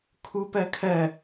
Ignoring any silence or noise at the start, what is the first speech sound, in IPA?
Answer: kʰ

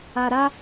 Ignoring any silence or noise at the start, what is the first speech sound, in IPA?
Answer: a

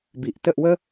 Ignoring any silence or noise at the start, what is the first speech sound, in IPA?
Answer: b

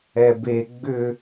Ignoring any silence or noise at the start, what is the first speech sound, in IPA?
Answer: ɛ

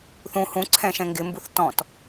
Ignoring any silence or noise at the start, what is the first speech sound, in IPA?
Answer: θ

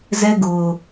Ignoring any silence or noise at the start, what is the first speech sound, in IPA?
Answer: z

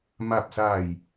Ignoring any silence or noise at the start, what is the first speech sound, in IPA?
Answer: m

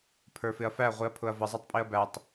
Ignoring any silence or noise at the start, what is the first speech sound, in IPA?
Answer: pʰ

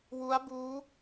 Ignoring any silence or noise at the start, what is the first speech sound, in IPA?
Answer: w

